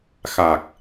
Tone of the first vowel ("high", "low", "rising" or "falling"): low